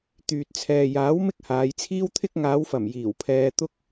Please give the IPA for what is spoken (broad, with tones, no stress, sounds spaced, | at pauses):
t̪ yː˨ t̚ t͡sʰ ɛː˨ j aː˨˥ w m ɪ˥ k̚ h aː˨˧ j t͡sʰ iː˥ w t̪ʰ ɪ˥ k̚ ŋ aː˨˧ w f ɐ˨˩ m j iː˨˩ w pʰ ɛː˧ t̪ ʊ˥ k̚